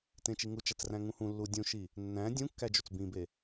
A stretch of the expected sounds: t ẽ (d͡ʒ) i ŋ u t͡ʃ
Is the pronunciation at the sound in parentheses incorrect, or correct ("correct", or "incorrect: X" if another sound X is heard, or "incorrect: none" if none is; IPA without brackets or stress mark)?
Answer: incorrect: t͡ʃ